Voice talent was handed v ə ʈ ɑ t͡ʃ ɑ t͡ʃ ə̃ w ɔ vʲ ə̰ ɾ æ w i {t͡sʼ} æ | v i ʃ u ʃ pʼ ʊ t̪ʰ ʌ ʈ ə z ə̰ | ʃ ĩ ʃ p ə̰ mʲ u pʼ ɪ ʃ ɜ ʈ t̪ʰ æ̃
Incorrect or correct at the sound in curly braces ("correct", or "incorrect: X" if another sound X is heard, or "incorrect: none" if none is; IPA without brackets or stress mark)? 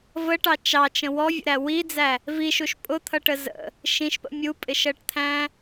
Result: incorrect: d͡z